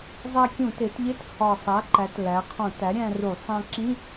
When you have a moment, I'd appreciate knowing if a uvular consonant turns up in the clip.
yes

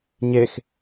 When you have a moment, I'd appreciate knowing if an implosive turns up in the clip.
no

